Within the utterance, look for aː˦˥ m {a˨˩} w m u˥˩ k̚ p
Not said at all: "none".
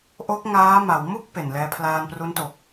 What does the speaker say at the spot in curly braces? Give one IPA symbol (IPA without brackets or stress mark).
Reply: a˩˦